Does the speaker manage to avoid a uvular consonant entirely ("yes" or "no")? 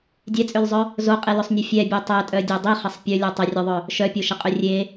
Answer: no